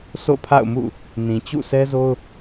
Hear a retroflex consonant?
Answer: no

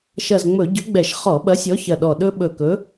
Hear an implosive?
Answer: yes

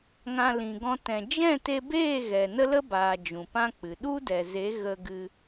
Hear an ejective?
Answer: no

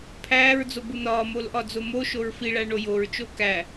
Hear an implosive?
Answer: no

